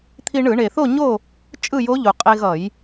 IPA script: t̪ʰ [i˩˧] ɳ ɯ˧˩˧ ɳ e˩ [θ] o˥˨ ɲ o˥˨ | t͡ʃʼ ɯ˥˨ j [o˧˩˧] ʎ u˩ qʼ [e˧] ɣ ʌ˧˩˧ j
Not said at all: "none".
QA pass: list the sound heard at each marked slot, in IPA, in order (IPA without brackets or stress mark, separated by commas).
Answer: i˧, θ, o˧˥, e˧